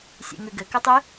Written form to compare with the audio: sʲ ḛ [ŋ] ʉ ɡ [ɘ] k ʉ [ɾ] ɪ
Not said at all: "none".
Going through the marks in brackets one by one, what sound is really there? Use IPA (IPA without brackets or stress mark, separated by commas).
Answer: ŋ, ɘ, tˤ